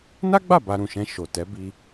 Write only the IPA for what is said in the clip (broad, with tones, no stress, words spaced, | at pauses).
na˦ɡ͡ba˦˨ ba˧ɾũ˨ʃɛ̃˧ ʃo˨tɛ˨˦ bi˧